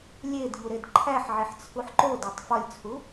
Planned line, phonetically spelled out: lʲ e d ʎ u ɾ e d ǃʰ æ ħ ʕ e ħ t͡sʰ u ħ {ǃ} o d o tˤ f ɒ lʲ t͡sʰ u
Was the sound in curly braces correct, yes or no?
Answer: yes